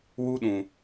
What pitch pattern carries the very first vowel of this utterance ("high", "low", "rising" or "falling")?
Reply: high